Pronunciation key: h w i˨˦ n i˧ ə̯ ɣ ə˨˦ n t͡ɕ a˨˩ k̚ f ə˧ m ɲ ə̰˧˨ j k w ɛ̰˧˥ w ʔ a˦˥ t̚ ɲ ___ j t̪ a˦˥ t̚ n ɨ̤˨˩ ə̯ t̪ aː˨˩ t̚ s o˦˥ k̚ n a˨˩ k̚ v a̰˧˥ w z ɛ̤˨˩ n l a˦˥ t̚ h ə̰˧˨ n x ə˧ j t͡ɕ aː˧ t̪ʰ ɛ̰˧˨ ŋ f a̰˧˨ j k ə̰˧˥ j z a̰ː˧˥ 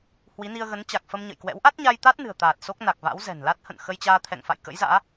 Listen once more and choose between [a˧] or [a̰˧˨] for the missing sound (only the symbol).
a˧